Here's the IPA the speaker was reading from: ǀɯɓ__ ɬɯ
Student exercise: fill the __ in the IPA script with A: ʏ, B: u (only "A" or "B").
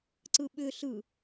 A